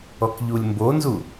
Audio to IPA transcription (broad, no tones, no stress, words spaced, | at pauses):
ɔkʎulʲmbonzu